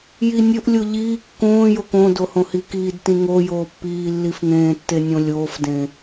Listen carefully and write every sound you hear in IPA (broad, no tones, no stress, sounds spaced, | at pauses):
j i nʲ ɵ ʔ lʲ o ʎ iː kː õː j o k õ d o h õ h i k iː d t ĩ ŋ o j oː pː iː lː i f ŋ ẽː tː e nʲ õ lʲ oː f d ẽ